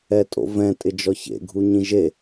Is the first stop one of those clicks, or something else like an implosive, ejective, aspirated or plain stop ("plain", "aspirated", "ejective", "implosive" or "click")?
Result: ejective